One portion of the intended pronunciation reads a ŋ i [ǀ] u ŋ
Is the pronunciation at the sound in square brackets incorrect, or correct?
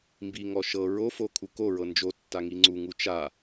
incorrect